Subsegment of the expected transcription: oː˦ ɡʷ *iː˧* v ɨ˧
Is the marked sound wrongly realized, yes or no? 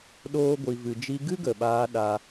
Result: yes